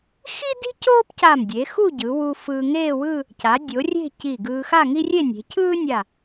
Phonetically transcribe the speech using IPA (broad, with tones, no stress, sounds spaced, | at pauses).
x i˥ d i̤˥ c oː˥ p c a˧˩ m dʲ e˩˧ x u˥˧ ɟ ɯ˩˧ w u˧ f ɯː˧ ŋ eː˥˧ w ɯ˥˧ | c a˩˧ dʲ o˩˧ rʲ e̤˥˧ c i˧˩ ɡ ɯː˧ x a˥˧ ŋ i˥ rʲ e˥˧ nʲ e̤˩˧ cʰ ɯː˥ nʲ a˧˩